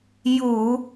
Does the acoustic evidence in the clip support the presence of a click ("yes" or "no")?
no